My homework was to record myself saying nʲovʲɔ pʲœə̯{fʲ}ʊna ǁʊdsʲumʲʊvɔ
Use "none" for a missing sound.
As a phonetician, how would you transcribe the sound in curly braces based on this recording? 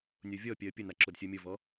pʲ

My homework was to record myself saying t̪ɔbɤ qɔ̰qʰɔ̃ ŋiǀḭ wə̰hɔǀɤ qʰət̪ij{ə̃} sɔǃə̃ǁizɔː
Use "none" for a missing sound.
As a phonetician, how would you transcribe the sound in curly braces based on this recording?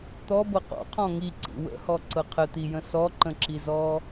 ə̃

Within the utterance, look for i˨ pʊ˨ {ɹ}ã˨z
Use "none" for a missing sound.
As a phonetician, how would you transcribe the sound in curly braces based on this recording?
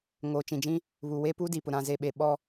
ɾ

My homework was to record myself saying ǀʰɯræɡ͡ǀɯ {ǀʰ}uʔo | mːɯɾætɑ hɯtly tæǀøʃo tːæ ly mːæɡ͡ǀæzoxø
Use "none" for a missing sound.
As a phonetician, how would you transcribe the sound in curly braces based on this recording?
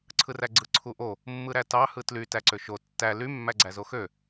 ǀʰ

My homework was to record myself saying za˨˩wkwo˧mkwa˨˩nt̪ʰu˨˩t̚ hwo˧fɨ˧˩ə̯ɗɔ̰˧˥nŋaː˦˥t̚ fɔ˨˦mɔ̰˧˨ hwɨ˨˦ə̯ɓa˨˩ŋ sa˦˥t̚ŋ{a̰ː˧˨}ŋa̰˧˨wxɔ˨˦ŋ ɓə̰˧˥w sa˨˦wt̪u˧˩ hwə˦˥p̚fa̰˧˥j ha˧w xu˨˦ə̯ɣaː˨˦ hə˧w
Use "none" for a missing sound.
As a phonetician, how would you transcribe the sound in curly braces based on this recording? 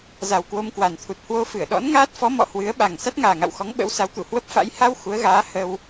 aː˨˩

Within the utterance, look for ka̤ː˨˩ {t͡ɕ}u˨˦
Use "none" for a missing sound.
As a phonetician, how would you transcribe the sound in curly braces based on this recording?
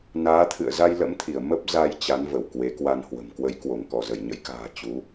t͡ɕ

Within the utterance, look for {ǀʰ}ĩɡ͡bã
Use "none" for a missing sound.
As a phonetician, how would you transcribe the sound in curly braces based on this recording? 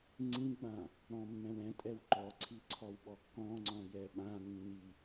ŋ͡ǀ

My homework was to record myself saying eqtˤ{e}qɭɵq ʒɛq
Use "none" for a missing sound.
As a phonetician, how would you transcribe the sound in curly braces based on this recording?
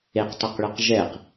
e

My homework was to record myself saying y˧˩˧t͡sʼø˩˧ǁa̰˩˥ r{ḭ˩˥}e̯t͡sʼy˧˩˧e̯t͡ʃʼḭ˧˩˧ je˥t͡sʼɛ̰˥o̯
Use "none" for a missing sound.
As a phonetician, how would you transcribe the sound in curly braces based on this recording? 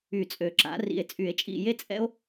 ḭ˧˩˧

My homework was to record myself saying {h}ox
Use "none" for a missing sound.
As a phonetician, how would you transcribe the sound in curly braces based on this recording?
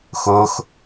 x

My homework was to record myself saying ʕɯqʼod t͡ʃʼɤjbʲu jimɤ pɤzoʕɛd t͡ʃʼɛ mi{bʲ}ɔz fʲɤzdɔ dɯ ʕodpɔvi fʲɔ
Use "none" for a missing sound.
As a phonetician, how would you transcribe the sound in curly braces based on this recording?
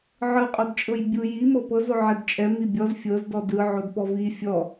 bʲ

